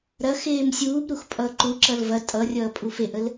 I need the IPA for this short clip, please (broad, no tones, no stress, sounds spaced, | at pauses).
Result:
ɾ ɐ x eː m sʲ uː b ɾ u x pʼ ʌː ǃ u ǁ ʌ l v ɐ tʼ ʌ rʲ ʌː pʼ u f e ʔ ə l